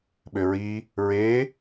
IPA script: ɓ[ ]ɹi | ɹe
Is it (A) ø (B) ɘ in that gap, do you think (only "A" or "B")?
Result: A